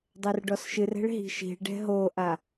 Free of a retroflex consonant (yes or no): no